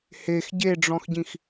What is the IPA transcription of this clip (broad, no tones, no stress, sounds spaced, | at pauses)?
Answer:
h e x ɟ e ɖ͡ʐ ɔ̃ x ɟ ĩ x